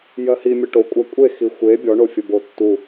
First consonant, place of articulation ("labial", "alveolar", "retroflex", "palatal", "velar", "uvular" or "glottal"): palatal